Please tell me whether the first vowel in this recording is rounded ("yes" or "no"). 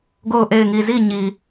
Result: yes